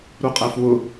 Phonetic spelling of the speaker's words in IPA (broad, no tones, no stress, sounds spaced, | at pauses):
ɾ u qʼ æ f w ʊ